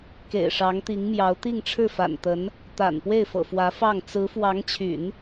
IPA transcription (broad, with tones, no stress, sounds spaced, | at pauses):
k ḛ˨˩ ɪ̯ ʂ ɑ˧˥ ŋ t̪ i˧˥ ŋ m j ɑ˧˥ ʊ̯ t̪ i˥˧ ŋ ʈ͡ʂʰ ɻ̩˥˩ f a̰˨˩ n t̪ ə˧˥ n | t̪ a̰˨˩ n p w e˥˩ ɪ̯ f ɤ̰˨˩ f w ä˧˥ f ɑ˥˩ ŋ t͡s ɹ̩˧˥ f w ɑ˧˥ ŋ t͡ɕʰ y̰˨˩˦ n